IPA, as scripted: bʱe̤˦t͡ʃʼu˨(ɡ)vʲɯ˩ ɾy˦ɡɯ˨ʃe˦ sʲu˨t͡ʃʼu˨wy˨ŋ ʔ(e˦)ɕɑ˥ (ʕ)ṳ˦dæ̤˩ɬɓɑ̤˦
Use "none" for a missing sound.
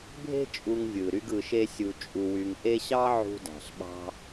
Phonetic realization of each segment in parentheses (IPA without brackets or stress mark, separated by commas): ŋ, e˦, ʕ